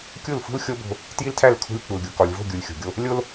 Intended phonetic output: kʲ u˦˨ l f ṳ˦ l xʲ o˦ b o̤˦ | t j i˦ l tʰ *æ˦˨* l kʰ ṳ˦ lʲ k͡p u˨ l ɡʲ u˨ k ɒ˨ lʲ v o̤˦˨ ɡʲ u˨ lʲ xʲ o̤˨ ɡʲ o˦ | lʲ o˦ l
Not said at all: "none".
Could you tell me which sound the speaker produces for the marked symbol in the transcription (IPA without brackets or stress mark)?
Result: æ˦˨